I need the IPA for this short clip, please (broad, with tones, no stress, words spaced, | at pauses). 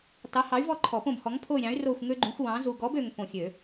tɑ˨˥hɑ˨˥y̯vɔ˦˨ǃʰɔ˨˩˦ põ˦˨bhɔ˨˥ŋpʰo˦˨y̯ɾʲɑ̃˨˥y̯ ro˦˨xʷ ŋø˦ɡ͡ǃũ˨˥xʷwɑ̃˨˥ zu˨ɡɔ˨˥bø˨ŋ põ˨˩˦xʲø˨˩˦